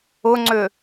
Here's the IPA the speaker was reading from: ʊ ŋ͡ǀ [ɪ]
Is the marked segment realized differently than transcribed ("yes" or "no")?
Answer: yes